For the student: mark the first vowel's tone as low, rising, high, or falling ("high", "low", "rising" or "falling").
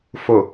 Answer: low